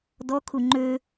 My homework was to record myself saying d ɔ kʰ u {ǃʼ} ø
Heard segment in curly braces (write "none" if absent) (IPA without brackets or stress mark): ŋ͡ǃ